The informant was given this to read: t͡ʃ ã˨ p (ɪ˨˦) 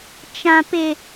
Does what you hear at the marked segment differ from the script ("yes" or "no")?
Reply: yes